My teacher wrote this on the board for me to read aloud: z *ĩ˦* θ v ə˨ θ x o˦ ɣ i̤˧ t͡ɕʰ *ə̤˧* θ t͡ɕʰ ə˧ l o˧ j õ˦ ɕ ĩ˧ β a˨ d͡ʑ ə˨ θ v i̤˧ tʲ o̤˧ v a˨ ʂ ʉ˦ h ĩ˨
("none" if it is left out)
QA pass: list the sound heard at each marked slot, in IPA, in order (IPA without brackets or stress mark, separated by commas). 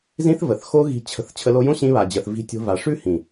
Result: ĩ˦, ə̤˧